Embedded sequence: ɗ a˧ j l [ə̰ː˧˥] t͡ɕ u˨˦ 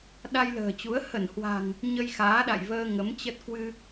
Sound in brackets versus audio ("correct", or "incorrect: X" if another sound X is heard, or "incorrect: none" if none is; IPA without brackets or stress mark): incorrect: ə̤ː˨˩